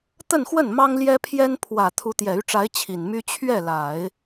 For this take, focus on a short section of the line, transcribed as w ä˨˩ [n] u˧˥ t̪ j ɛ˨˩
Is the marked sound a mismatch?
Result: yes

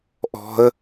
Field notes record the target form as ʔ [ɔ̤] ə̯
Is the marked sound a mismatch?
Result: no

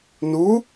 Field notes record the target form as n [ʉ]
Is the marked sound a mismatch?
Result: yes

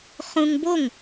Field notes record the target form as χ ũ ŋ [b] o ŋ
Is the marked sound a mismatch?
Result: no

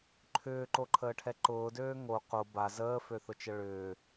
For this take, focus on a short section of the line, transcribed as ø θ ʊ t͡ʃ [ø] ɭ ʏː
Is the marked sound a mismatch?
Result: yes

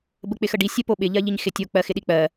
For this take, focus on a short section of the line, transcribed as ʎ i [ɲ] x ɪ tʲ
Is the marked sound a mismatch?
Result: no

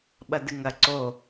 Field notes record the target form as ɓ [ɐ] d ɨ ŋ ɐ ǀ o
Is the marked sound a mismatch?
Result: no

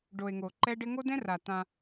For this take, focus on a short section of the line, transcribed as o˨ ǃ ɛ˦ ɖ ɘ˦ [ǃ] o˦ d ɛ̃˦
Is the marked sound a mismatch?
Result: yes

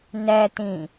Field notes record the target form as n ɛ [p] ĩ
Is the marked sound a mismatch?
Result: yes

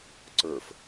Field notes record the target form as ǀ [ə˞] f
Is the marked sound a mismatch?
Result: no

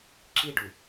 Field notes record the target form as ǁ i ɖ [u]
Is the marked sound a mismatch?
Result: no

